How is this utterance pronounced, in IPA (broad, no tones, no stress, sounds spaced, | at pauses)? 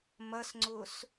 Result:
m ɐ s ŋ͡ǀ ʊ s